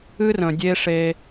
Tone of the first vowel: high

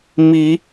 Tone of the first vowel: rising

